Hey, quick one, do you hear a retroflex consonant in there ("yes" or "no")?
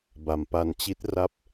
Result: no